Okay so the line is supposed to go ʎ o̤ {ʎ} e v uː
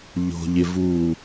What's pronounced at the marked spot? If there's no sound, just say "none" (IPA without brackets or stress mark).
ʎ